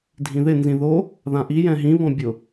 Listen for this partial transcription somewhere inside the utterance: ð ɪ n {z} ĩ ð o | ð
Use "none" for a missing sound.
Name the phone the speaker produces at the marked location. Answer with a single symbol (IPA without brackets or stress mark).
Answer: z